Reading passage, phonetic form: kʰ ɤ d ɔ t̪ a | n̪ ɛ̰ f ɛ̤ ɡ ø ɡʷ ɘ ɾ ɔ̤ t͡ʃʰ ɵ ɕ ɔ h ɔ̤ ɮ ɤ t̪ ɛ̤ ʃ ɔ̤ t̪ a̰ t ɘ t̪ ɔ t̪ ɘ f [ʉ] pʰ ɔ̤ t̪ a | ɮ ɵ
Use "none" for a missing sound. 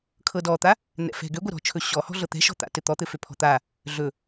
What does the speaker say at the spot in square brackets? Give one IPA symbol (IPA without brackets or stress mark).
ø